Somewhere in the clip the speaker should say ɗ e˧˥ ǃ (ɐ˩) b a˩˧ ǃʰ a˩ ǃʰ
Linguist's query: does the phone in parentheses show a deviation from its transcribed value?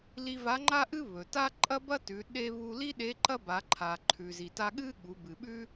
yes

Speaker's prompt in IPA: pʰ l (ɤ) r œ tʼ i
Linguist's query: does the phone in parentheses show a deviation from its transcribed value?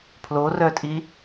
yes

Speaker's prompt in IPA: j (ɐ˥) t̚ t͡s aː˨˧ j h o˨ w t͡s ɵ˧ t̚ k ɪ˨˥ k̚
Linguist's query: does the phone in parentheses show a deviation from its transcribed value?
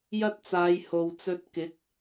no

